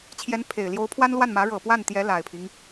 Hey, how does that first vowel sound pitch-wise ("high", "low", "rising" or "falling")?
rising